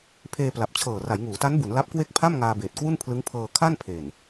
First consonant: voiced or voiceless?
voiceless